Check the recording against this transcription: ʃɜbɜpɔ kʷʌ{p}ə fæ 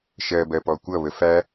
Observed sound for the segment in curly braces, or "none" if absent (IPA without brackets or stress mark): β